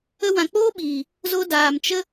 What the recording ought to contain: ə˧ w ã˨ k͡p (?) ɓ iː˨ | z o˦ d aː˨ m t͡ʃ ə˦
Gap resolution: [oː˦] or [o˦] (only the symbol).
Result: oː˦